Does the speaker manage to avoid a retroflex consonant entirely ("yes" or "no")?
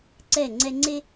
yes